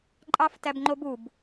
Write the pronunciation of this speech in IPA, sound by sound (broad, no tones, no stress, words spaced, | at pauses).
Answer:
ǃʼɑftæbŋ͡ǃobub